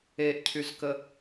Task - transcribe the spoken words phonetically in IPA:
e ʔ cʰ y z k ə

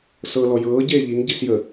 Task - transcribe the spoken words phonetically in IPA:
s ɤ l ɔ j ɤː ɟ eː ʎ i ŋ ɟ i s j ə

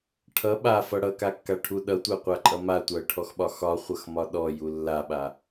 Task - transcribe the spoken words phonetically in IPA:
ʈʰ ʌ ɓ a f ʌ ɽ ʌ k a kː a ʈʰ u ɗ ʌ tʷ a qʷ a ǃʼ ʌ m a tʷ a ə̯ ʈʰ ɔ x ɓ ɒ x ɒ χʷ ʌ x m ɒ ɗ ɔ j u lː a ɓ a

